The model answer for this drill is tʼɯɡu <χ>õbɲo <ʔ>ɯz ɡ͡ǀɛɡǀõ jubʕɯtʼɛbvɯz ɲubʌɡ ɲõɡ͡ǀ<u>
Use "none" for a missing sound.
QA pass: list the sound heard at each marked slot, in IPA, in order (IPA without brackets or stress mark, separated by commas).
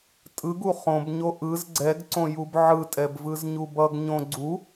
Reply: χ, ʔ, u